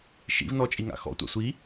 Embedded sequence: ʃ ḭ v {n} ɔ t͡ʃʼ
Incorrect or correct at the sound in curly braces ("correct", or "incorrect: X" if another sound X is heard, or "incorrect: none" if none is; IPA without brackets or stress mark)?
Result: correct